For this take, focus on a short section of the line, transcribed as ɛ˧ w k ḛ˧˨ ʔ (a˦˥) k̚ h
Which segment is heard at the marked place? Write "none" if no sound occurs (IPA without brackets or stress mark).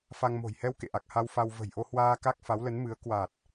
a˨˩